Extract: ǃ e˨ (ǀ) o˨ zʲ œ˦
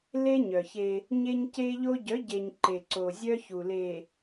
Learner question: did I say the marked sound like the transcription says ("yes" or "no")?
yes